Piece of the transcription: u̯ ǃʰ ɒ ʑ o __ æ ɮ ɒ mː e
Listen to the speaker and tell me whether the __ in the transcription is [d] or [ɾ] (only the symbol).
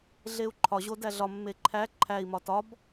d